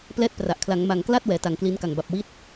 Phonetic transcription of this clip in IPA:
p l ɛː˥˩ t̚ p r a˨˩ ʔ kʰ l a˩˦ ŋ m a˨˩ ŋ k l a˥˩ t̚ w ɛː˩˦ t a˨˩ ŋ k l i˦˥ n k a˨˩ ŋ b a˨˩ p̚ w i˦˥ t̚

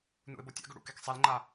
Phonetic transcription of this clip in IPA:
n ṵ ɪ̯ b o tʲ a̰ ɡ ɵ ɽ ṵ k e k sˤ e l ŋ͡ǃ a

